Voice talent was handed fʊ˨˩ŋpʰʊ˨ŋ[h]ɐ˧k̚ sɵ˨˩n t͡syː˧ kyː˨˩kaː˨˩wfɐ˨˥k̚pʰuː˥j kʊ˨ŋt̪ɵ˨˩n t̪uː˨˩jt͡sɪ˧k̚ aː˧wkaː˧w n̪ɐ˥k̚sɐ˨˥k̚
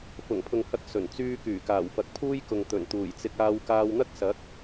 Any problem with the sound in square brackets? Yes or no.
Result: no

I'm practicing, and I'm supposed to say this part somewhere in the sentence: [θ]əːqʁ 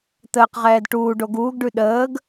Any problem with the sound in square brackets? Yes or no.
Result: yes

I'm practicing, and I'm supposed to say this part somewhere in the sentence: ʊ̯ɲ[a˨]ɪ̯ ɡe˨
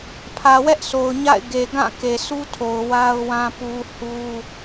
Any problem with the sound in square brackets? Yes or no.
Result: yes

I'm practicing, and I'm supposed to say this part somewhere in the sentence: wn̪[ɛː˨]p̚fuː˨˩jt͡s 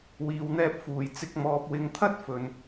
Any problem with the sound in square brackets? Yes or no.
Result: yes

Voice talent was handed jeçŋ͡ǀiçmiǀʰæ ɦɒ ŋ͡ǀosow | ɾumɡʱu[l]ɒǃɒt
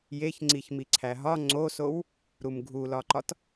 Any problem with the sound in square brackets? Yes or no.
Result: no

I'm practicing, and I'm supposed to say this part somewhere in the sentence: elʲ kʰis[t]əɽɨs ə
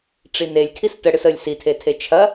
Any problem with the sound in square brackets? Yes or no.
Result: no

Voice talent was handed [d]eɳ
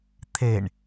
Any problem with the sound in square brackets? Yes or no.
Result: yes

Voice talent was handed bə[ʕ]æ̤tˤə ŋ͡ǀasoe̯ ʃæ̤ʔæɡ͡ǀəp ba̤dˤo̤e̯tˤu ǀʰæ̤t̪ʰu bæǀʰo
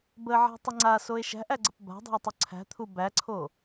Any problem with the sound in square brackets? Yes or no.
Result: no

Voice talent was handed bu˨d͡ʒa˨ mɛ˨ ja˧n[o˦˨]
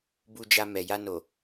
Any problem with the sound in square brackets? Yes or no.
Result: yes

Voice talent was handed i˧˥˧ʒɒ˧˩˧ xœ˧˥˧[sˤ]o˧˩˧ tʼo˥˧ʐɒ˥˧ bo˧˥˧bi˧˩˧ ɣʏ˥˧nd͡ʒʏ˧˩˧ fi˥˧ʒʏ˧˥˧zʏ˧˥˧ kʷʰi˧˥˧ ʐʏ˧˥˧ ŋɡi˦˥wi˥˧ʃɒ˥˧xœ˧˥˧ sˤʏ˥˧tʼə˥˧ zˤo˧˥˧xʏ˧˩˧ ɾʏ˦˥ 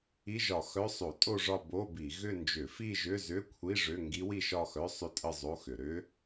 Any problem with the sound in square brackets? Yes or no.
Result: no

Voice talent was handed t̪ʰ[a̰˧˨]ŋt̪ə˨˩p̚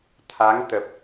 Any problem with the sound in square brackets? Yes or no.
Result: yes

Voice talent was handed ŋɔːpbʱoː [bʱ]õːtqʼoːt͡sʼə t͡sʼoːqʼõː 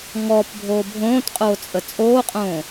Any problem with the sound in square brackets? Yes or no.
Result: no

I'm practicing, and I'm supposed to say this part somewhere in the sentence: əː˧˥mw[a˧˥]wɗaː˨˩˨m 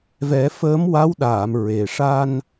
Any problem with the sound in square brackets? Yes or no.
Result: no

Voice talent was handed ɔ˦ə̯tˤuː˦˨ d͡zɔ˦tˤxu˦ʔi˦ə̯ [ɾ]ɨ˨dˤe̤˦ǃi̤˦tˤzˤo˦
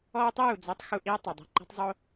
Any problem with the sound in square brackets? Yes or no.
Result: yes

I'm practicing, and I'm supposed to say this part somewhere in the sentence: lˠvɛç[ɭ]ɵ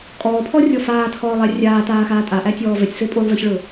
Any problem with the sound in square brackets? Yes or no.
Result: no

